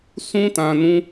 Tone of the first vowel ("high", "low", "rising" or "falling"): high